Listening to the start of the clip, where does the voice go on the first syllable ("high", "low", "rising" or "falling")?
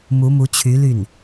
rising